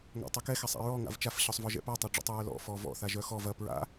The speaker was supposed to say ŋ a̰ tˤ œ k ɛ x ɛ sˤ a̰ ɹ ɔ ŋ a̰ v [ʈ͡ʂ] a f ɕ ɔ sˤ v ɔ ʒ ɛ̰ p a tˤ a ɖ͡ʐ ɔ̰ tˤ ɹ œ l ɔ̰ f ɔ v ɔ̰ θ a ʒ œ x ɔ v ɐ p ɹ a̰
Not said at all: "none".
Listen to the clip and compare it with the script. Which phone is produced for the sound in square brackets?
t͡ʃ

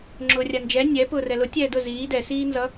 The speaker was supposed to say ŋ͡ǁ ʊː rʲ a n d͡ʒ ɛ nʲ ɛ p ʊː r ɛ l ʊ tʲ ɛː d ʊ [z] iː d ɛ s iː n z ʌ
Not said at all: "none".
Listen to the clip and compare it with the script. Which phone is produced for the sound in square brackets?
z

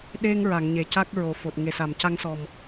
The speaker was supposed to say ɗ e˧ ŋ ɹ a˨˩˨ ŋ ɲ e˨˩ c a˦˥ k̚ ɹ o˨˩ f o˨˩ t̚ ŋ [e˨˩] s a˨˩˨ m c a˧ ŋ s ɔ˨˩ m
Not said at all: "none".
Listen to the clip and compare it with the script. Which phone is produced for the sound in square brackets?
e˨˩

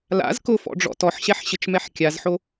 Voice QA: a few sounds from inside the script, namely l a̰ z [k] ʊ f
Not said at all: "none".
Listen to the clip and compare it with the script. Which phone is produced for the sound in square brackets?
k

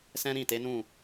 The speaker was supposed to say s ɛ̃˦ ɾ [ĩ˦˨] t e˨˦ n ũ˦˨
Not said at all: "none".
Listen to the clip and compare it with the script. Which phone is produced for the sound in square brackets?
ĩ˦˨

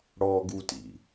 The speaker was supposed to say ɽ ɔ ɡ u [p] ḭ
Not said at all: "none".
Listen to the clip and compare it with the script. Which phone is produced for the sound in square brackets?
t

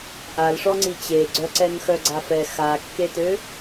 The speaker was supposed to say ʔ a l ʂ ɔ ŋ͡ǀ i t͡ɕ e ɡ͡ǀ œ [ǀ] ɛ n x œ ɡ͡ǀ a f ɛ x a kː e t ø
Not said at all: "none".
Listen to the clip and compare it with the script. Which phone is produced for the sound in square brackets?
ǀ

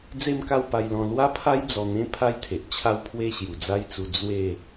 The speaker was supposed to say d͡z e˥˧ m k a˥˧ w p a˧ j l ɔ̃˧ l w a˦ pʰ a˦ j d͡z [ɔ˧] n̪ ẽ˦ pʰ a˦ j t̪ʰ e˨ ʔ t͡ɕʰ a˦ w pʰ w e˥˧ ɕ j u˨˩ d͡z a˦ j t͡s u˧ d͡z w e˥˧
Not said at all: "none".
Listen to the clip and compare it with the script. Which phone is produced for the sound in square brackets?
ɔ˧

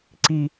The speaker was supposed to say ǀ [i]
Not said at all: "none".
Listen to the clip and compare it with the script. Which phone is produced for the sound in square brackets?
i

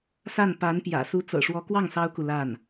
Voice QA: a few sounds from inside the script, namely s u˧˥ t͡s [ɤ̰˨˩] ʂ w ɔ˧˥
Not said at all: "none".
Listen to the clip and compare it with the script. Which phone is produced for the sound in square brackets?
ɤ̰˨˩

